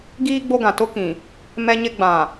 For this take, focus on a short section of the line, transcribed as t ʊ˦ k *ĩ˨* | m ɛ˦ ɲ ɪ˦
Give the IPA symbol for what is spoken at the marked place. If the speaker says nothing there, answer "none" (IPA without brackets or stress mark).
ĩ˨